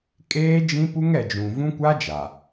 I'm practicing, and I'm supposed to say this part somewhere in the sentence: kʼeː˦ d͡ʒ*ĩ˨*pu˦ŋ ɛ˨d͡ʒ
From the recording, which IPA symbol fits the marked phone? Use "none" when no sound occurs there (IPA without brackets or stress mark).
ĩ˦